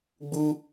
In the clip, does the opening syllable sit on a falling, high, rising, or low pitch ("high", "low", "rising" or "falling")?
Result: high